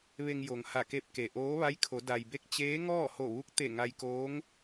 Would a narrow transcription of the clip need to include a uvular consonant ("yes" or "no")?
no